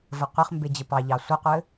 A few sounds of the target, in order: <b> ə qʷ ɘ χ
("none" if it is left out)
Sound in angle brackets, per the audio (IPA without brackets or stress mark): v